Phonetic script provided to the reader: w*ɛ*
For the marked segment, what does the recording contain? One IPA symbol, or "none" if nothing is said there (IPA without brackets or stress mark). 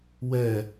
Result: ɛ